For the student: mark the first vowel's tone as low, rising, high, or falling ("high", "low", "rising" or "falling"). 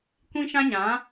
high